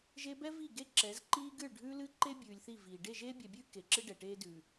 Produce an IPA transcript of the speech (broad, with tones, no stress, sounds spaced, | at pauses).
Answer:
ʒ e˦ b ɛ˦ v i˦˨ ɡ e˦ ǁ ɛ˨˦ z ǃ iː˦ ɡ ɨ˦˨ ɭ ɖʱ ʉː˦ l ɨ˦ ǃ e˦ bʲ ʉː˨ lʲ θ i˦˨ v iː˨ ɖ e˦˨ ʒ eː˦ bʲ ɛ˨ bʲ ʉː˦ k e˨ ǁ ɨ˦ ɖ ɛ˨ ʈ eː˦ d ʉː˨